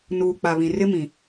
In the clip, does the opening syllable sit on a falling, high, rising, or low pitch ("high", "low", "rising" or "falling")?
low